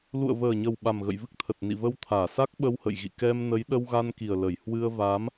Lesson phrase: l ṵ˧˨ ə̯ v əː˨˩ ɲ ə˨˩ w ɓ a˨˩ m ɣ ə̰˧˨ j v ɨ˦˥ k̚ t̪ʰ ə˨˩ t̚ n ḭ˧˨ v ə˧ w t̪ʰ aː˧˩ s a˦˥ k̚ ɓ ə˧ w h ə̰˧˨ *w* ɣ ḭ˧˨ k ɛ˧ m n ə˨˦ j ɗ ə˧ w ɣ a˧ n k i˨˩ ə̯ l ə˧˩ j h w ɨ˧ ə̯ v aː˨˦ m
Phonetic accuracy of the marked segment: incorrect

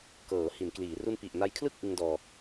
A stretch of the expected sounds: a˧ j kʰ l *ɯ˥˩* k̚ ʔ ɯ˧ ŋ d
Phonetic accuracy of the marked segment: correct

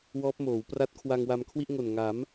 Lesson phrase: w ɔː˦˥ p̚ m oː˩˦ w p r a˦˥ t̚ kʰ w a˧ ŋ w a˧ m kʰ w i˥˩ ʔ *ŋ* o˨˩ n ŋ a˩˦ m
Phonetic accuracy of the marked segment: correct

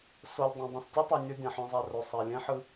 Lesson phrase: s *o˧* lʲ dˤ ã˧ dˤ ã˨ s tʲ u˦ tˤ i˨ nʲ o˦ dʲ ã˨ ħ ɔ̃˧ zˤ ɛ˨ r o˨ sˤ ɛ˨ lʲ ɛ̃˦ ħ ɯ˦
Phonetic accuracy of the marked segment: correct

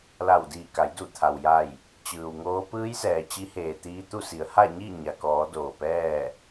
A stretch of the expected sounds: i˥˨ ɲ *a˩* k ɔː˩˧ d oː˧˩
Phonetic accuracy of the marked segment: correct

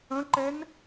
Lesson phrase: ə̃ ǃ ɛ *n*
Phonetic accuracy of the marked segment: correct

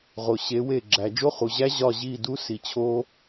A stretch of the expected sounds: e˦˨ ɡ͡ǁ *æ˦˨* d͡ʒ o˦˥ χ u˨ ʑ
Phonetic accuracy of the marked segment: incorrect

